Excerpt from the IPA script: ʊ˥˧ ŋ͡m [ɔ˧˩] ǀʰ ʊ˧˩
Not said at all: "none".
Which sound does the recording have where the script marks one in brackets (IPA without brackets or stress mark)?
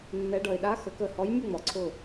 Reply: ɔ˩